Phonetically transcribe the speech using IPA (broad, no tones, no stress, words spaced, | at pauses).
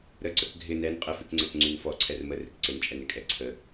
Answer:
ɾəǀək ɡʱɪ nɛn qʼəfykŋ͡ǀɛk ŋ͡ǀynfɔ ǀʰɛrmə rɪkǀɪnt͡ʃʼɛn ɪkʼɛǀʰə